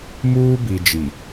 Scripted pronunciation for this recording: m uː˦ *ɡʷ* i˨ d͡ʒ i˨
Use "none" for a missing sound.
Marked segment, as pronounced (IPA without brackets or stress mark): b